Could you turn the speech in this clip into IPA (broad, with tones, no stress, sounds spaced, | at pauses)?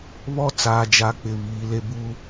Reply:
β ɔ˦ t͡s aː˨ d͡ʒ a˨˦ k͡p ɪ˨ β iː˨˦ l e˦ b u˦